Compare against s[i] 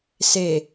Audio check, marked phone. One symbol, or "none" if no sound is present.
e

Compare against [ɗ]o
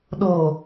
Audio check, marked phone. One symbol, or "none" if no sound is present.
ɗ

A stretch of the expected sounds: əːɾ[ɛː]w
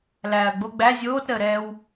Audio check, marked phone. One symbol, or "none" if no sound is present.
ɛː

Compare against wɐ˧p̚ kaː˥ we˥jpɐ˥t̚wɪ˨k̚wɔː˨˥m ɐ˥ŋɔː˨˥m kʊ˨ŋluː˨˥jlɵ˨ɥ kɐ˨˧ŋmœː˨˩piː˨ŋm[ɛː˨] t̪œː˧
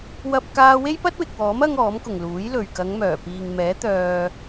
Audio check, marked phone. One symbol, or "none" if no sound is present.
ɛː˨˥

